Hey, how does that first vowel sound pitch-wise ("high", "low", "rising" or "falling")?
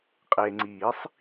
low